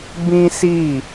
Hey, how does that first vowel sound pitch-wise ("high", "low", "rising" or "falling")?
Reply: high